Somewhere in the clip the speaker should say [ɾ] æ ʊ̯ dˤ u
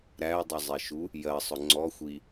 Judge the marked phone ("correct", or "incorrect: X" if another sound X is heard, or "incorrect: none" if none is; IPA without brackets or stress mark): correct